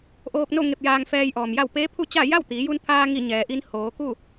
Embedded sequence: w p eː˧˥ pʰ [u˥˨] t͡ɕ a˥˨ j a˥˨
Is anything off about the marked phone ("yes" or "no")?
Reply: no